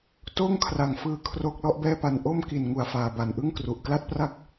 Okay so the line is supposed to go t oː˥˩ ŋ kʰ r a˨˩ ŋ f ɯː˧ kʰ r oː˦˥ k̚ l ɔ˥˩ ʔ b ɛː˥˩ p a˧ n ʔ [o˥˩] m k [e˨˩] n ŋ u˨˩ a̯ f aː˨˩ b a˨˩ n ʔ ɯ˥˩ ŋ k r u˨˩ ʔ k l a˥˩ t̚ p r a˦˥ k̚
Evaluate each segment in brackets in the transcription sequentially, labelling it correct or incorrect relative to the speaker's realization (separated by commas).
correct, incorrect